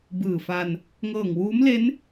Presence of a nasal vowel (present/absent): absent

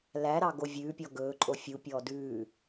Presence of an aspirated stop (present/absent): absent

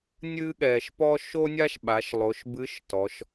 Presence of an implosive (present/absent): present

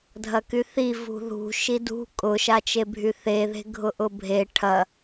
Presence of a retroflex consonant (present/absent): present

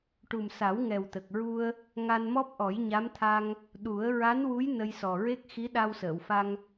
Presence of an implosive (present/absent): present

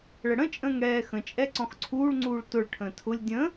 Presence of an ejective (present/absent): present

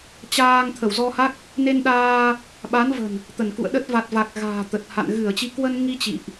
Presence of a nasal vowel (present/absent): absent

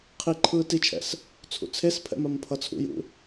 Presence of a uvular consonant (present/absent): present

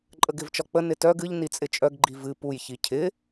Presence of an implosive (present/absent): absent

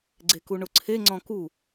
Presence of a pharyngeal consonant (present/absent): absent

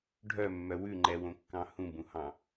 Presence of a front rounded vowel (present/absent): present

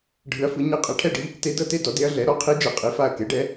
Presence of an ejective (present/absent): present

